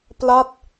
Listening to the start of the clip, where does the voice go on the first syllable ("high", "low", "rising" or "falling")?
falling